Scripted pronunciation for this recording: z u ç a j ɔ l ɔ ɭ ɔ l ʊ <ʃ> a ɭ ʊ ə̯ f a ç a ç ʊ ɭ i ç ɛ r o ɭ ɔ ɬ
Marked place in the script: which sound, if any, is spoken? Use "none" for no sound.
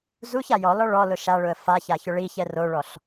ʃ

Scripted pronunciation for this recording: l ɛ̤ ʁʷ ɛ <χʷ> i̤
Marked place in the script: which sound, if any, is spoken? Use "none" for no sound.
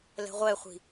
χʷ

